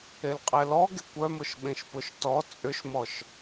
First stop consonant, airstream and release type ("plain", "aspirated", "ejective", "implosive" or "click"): ejective